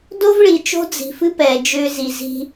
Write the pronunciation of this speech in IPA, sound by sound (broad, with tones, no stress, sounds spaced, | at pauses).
d o˦ v ɭ i˨ t͡ʃ o̤˦ d͡z i̤˨ f ɨ˦ p ɛː˨ d͡ʒ ʏː˦ z i˨ z i̤˦